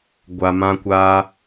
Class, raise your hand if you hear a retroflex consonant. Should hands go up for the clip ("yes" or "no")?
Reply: no